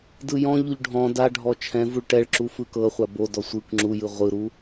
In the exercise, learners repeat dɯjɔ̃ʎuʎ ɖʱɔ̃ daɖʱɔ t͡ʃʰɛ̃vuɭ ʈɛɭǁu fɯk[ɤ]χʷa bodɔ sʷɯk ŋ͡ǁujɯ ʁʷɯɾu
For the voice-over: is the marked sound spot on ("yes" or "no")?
yes